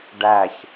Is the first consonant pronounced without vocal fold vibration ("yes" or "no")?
no